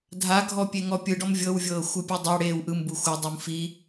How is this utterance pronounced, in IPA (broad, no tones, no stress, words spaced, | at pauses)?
dʱaɡʱɔ pʲeŋɔpʲɯɖɔm vʲɤwvʲɤː xʷɯpʲudˤa ɽeːwʔɯm buxʷɤdˤum fi